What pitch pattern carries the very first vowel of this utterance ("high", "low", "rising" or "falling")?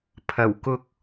low